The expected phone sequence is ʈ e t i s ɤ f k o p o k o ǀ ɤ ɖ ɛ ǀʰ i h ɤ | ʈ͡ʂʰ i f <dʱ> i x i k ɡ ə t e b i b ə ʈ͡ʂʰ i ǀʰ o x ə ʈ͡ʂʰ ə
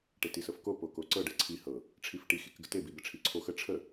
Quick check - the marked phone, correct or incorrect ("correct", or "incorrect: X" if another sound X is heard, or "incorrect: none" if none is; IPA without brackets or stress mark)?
incorrect: ʈ